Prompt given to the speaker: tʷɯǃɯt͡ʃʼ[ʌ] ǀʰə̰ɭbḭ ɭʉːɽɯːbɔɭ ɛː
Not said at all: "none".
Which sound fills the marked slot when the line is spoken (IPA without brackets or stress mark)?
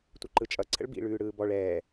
ʌ